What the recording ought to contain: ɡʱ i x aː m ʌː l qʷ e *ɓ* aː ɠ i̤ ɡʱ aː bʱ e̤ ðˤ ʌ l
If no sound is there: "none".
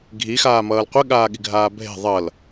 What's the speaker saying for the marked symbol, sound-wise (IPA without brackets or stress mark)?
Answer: ɠ